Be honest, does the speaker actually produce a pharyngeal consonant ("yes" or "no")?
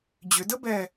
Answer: no